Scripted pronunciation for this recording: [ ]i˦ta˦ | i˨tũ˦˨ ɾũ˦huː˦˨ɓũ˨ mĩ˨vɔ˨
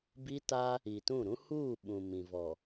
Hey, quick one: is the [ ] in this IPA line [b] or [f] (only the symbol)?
b